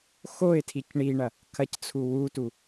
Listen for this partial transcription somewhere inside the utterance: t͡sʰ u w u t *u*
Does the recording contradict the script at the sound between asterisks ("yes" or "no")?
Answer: no